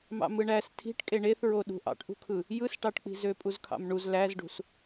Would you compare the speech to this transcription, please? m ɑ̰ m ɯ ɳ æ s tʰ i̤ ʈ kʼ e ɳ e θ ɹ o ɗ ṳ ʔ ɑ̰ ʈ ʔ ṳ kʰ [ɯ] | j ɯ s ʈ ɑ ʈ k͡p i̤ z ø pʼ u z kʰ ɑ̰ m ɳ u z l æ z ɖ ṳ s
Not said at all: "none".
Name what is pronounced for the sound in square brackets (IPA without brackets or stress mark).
ɯ